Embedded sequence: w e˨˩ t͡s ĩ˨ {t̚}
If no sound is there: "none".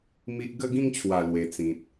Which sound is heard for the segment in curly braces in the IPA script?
t̚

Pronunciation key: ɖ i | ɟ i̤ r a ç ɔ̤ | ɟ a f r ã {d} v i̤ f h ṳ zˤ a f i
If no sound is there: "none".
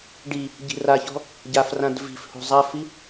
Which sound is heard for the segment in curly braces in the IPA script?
d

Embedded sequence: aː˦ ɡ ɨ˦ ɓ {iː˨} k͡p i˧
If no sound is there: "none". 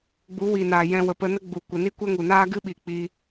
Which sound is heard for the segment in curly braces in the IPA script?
i˨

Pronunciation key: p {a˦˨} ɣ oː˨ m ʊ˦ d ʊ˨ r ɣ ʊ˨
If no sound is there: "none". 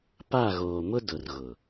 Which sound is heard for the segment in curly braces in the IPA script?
a˦˨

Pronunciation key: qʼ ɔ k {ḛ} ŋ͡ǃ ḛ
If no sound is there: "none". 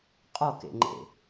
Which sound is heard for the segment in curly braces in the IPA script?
ḛ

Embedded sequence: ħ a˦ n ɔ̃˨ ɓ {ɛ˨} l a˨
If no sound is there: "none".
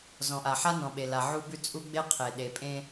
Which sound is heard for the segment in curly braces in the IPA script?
e˨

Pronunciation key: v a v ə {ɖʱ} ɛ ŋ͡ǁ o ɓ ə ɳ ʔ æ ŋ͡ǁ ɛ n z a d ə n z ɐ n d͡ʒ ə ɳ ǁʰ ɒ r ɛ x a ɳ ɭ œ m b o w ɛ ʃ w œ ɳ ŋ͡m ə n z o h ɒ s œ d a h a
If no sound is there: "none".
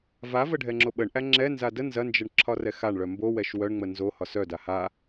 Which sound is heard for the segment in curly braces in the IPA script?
ɖʱ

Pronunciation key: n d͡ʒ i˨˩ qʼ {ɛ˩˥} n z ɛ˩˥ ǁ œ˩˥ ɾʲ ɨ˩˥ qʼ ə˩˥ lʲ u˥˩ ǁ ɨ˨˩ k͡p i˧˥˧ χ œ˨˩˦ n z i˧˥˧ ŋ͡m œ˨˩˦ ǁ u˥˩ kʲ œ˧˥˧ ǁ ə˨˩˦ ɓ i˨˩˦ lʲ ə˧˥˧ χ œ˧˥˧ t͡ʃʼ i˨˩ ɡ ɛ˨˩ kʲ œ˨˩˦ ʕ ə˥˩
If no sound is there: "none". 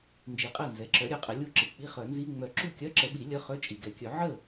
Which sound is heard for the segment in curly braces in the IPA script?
ɛ˥˩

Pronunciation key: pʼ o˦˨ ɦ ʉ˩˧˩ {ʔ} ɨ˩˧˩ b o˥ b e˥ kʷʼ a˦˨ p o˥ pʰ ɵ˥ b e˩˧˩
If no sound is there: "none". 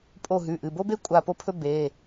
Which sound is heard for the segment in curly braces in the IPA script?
ʔ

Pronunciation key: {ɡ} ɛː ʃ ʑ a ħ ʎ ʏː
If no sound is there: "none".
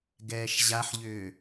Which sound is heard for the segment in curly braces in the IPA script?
ɡ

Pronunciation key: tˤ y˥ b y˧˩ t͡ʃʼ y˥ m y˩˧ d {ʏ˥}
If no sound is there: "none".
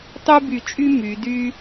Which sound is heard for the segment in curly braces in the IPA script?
y˥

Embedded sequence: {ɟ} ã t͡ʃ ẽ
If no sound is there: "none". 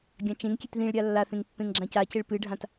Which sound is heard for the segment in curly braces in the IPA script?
ɡʲ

